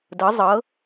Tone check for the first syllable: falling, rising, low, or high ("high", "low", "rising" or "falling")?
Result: rising